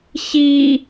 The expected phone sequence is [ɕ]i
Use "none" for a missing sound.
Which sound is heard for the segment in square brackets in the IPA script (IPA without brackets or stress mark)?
ɕ